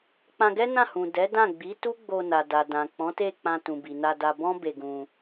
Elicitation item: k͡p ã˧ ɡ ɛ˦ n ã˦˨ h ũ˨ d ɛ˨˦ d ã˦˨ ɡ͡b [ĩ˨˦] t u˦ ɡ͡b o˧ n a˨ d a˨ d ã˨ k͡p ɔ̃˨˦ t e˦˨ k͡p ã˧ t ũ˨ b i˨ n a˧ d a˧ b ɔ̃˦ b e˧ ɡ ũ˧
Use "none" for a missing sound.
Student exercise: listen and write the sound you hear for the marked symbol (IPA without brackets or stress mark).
i˨˦